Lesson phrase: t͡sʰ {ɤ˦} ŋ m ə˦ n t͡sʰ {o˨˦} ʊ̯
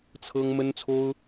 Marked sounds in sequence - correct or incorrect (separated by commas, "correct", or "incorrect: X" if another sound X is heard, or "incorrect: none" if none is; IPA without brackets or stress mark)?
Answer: correct, incorrect: o˦